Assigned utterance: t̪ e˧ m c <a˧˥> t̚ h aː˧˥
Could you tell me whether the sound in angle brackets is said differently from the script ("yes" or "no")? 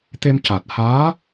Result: yes